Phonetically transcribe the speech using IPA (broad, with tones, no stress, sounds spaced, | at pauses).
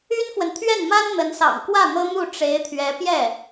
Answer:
y˥ n f w ə˨ n t̪ʰ ɥ ɛ˥˩ n m a˥ n n̪ ə˧˥ n s ɑ̰˨˩ ŋ k w ä˥˩ n̪ ɤ˥ n̪ u˥˩ ʈ͡ʂ e˧˥ ɪ̯ t̪ʰ ɥ ɛ˧˥ p j ɛ˥˩